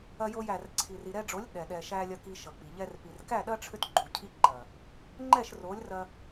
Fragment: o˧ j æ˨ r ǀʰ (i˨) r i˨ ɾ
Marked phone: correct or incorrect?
correct